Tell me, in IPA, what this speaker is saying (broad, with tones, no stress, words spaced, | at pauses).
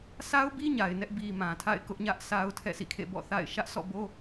sʰa˦ʊ̯bi˦ ɲa˨ɪ̯nɛ˦ʔ bi˨ mã˨tʰa̰˦˨ɪ̯ kʊ˦ʔɲä˦ʔ sʰa˦ʊ̯ tʰɛ̰˦˨sʰḭ˦˨kʰḛ˦˨ bɔ̰˦˨θa̰˦˨ɪ̯ ʃä˦ʔsʰɔ̰˦˨bo˦